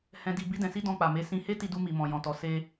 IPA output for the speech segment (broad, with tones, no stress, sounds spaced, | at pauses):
h ɛ̃˧ d i˧ b i˦ d ɛ̃˧ s i˦ d ɔ̃˧ k͡p a˨ m e˨˦ s ĩ˧ h e˦ t i˧ d u˧ m i˨ m ɔ̃˨ j ɔ̃˨ t ɔ˨ s e˧